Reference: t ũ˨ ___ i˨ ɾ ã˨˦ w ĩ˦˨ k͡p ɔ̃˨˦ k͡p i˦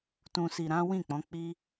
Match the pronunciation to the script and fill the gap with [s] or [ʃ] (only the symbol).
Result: s